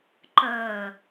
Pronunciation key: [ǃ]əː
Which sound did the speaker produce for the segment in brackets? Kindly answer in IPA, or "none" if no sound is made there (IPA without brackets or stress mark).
ǃ